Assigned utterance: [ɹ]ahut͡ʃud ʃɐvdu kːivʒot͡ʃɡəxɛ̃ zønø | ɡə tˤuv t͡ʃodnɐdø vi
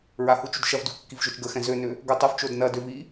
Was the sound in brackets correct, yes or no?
yes